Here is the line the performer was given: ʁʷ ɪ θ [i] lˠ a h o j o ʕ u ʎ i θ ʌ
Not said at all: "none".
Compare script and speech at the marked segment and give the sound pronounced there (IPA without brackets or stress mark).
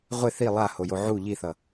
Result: i